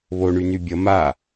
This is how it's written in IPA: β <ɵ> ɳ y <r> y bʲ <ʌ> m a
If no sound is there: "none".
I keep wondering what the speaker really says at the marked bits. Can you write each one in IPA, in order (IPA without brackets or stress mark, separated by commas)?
o, n, ʌ